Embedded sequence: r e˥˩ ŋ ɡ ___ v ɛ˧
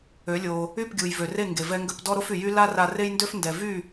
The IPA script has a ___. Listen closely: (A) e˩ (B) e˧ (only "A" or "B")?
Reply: A